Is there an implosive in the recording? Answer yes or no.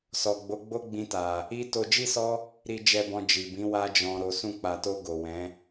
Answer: no